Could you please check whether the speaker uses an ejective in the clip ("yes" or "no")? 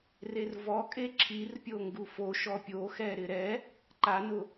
yes